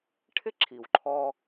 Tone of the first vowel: high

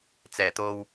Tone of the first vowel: low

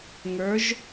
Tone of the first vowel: rising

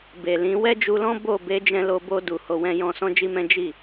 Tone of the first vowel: low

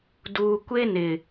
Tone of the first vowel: low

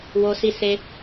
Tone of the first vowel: high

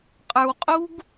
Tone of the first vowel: low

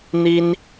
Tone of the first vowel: high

